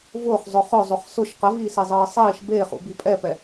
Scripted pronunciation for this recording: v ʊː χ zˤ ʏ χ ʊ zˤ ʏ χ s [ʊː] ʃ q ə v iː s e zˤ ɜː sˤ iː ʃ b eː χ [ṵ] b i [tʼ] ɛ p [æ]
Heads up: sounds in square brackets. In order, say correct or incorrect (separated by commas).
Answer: incorrect, correct, incorrect, incorrect